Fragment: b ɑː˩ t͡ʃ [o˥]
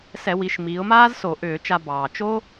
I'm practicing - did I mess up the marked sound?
no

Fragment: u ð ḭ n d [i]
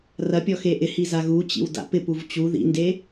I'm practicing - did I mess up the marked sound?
yes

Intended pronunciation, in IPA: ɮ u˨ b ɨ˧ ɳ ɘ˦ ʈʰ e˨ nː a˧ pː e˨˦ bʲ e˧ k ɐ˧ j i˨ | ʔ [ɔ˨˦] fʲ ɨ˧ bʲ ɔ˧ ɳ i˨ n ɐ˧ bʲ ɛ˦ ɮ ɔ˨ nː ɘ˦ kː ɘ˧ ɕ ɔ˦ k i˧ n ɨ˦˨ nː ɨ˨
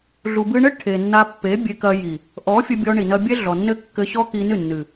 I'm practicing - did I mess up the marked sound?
no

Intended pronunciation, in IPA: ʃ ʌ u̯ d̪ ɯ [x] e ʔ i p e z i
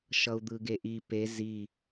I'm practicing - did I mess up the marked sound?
yes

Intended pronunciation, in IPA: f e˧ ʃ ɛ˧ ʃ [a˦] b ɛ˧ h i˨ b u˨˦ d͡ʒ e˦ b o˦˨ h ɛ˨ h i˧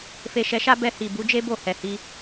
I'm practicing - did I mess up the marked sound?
no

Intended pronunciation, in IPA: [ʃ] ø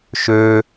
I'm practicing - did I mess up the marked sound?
no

